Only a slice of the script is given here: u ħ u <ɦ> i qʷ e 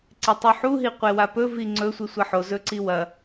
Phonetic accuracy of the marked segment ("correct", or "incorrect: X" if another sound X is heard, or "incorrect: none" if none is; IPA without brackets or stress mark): correct